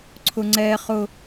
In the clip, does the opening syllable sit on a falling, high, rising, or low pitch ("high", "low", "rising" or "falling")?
high